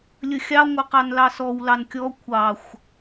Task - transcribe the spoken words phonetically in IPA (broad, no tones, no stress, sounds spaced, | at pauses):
lʲ ə xʲ ɑ ŋʷ ə q ɑ n l ɑ s ɔ w l ɑ n kʲ ɔ kʷʰ ɑ xʷ